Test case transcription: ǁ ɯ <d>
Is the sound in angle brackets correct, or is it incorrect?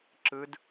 correct